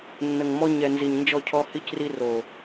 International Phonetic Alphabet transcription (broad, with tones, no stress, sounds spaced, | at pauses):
nː ə˨ ŋ m ɔ˦ ɲ ɛ˨ n z i˨ ɲ n d͡ʒ ɔ˦˨ cʰ ɔ˦ h i˦ c r i˦ r o˨